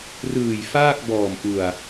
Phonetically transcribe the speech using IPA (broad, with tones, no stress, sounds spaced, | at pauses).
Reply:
r ɯː˨˩ j f aː˥˩ k̚ b ɔː˨˩ m ʔ u˨˩ a̯